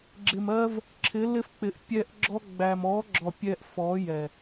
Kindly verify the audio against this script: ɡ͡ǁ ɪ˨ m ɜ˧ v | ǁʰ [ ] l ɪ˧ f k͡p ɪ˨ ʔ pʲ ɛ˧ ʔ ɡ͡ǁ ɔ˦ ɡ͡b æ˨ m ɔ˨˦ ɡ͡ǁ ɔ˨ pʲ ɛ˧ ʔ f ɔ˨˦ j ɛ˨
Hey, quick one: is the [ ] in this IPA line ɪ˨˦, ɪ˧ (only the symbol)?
ɪ˨˦